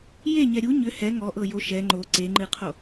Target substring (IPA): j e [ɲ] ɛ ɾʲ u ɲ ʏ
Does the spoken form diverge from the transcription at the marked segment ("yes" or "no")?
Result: no